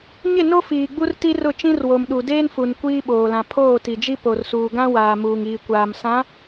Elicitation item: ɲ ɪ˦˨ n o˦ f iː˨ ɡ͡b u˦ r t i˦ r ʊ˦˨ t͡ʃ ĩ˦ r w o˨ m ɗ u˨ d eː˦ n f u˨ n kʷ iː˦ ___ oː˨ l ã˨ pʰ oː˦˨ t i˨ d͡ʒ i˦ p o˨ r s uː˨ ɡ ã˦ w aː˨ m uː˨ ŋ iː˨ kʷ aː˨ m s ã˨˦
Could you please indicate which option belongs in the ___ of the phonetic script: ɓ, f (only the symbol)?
ɓ